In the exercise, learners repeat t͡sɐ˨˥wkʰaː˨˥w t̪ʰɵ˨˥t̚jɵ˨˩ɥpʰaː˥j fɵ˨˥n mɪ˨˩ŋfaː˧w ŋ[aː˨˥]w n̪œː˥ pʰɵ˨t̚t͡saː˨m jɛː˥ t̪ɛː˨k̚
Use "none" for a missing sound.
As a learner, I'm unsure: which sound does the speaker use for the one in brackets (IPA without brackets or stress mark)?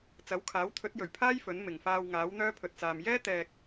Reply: aː˨˥